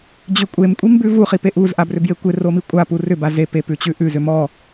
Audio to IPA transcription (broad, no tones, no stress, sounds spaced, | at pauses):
d͡ʑ ʏ kʷʼ e m kʷʼ i m b ʉ v u χ i p e ʔ u z ʔ a b r ʏ b j e kʷ e r o m i kʷʼ a p u r ʏ b a z e p e p ʉ t͡ɕ ʉ ʔ ʉ z ʏ m ɔ